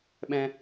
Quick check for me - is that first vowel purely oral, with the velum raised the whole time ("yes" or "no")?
no